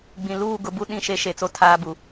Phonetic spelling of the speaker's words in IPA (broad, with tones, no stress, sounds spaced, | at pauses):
ɡ͡b ĩ˨ l uː˦˨ ɡ ʊ˦ b u˦ ɗ ĩ˦˨ ʃ e˦ ʃ e˨ t͡s o˦ tʰ aː˦ b u˨˦